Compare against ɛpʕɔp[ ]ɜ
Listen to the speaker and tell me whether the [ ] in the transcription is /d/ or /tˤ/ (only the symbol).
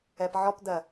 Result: d